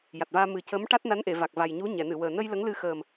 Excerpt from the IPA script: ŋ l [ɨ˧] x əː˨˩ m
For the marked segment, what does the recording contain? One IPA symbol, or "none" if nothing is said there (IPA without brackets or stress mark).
ɨ˧